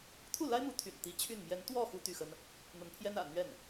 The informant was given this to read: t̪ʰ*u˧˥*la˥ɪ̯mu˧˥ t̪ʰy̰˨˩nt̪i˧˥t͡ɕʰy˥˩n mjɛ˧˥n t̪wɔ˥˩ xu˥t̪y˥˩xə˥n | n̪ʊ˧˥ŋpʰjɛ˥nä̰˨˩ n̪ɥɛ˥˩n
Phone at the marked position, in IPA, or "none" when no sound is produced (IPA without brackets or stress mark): u˥˩